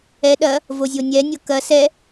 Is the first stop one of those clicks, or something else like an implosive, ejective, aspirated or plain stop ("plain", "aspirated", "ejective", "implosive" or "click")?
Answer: implosive